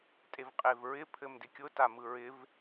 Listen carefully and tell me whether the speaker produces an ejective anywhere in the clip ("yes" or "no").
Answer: yes